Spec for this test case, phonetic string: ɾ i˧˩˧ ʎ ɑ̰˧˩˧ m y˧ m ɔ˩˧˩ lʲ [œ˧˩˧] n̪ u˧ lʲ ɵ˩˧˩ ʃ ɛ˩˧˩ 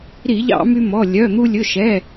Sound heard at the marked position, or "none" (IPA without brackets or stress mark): œ˩˧˩